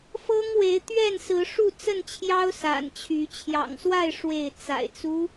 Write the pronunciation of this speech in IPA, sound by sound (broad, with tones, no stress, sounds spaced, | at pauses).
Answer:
f ɤ˦ ŋ w e˨˦ ɪ̯ t̪ ɥ ɛ˥˨ n s ɹ̩˨˦ ʂ u˥˨ t͡s ə˥˨ n t͡ɕʰ j ɑ˦ ʊ̯ s a̰˨˩ n t͡ɕʰ y˨˦ t͡ɕʰ j ɑ̰˨˩ ŋ s w a˥˨ ɪ̯ ʂ w e˥˨ ɪ̯ t͡s a̰˨˩ ɪ̯ t͡s u˦